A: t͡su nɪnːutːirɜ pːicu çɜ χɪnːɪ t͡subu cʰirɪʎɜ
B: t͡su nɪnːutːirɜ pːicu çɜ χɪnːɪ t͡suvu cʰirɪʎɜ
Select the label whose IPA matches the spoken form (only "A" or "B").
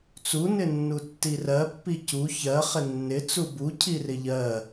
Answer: A